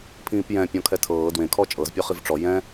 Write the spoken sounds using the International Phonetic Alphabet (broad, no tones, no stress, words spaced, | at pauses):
pʰĩːpjɛ̃pʲɔ̃ kʰɛtʰɤː dwẽkʰɔ t͡ʃʼɤzpʲɔ χivʈ͡ʂɔ jɛ̃